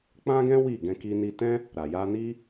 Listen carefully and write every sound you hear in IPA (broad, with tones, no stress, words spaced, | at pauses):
k͡pã˦ɡɛ̃˦ wi˦˨ ɡɛ̃˧ki˧ni˧ tɛ̃˦ | ɾa˨ja˧ni˦